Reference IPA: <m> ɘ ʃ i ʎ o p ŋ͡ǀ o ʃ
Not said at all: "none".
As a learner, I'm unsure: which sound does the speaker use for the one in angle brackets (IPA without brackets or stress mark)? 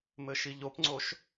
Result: m